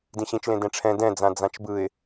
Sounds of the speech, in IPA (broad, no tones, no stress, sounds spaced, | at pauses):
d ĩ ɕ ĩ t͡ʃ l ẽ d ɛ̃ ʈ͡ʂʰ ɛ̃ d ɛ̃ d͡z ã d͡z ã t͡ʃ b ɯ ɪ̯